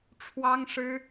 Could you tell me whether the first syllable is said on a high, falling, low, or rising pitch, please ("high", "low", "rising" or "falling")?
high